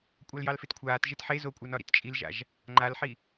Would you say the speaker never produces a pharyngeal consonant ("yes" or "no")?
no